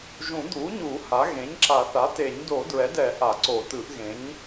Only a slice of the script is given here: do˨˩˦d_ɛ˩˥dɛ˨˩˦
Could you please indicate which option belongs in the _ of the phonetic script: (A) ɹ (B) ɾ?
A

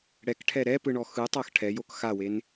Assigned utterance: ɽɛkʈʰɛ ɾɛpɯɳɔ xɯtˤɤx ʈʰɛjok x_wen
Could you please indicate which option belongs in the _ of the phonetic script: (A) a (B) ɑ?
A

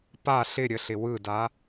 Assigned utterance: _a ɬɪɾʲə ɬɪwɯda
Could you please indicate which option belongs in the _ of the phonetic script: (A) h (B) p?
B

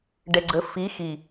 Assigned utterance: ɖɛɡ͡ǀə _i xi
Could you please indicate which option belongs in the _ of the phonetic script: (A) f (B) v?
A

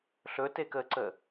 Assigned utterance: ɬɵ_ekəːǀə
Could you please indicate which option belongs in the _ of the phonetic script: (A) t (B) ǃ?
A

